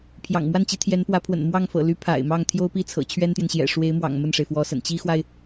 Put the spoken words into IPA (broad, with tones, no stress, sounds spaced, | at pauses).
pʰ j ɑ̰˨˩ ŋ m w a˥˩ n t͡ɕ i˧˥ t̪ʰ j ɛ˧˥ n p w ä˧˥ pʰ w ə̰˨˩ n m w ɑ˥˩ ŋ f ɤ̰˨˩ l y˧˥ pʰ a̰˨˩ ɪ̯ m ɑ˥˩ ŋ t̪ʰ j o˥ ʊ̯ p i˥˩ t͡sʰ ɤ̰˨˩ t͡ɕʰ ɥ ɛ˥ n t̪ j ɛ˨ n ɕ j ɛ̰˨˩ ʂ w e˧˥ ɪ̯ m w ɑ̰˨˩ ŋ m ə˥˩ n ʂ e˩ ɪ̯ f w ɔ˧˥ s ə̰˨˩ n t͡ɕ i˥ x w a˨ ɪ̯